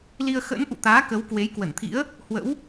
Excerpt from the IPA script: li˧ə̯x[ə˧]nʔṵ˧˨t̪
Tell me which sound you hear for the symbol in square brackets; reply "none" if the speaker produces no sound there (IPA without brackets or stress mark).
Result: ə̰˧˥